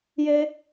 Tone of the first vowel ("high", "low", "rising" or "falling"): high